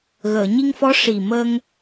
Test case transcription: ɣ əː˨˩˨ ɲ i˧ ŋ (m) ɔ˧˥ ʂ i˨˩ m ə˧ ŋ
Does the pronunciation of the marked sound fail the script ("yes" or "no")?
yes